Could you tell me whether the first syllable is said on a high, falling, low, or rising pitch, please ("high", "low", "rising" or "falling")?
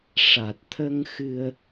low